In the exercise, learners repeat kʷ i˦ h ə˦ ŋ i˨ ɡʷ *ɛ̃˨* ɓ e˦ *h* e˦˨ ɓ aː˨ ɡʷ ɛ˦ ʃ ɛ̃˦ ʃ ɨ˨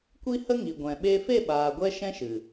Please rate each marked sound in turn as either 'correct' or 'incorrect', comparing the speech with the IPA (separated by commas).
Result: correct, incorrect